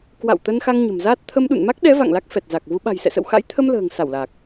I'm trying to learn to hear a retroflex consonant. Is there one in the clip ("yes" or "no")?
no